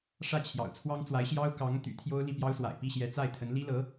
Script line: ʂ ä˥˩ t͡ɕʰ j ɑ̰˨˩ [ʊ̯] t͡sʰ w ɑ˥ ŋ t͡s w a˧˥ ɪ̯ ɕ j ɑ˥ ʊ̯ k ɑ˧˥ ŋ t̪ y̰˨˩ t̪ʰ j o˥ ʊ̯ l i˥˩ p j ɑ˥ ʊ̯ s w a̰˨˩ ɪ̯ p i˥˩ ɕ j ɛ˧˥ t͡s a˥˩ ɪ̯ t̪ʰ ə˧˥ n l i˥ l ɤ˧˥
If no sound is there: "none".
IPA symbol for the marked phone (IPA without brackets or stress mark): ʊ̯